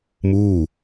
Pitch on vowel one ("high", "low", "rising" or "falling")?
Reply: falling